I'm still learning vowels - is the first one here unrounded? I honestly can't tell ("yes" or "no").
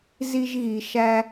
yes